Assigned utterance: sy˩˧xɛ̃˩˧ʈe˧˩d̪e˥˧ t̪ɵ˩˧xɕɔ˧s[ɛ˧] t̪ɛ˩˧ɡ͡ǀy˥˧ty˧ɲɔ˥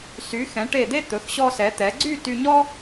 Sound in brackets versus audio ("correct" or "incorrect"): incorrect